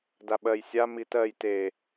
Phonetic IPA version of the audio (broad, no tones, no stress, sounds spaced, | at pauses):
d a ɓ ɜ j sʲ a m i t ɜ j t e